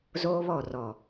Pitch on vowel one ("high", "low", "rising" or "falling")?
high